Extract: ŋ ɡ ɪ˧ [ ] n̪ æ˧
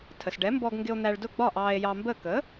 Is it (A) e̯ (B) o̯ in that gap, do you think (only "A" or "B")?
B